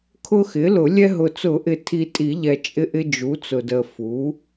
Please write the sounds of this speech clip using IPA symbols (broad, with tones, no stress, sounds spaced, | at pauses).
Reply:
kʰ ʊ˦ x ɪ˩˥ l ʊ˨˩˦ lʲ ɛ˦ ɦ ʊ˨ t͡s ʊ˨˩˦ ʔ ɪ˨ tʰ i˨ tʼ i˨˩˦ ʎ ɛ˨ t͡ʃʼ ɪ˦ ʔ ɪ˦ d͡ʒ u˩˥ t͡s ʊ˨ d ə˨ f u˩˥